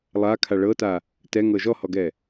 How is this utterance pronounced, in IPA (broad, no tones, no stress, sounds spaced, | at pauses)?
lˠ a kʰ a ɭ ɤ t a | t ɛ ŋ ɤ ʒ ɔ h ɔ ɡ ɛ